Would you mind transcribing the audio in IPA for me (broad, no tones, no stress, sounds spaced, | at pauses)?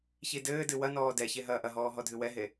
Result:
ç i d ɘː d ɨ w ɐ n ɔː d ɛ ç e ɦ ɐː ʔ ɐ ɦ ɔː ɦ ɔ dʱ ɨ w ɛ ɦ e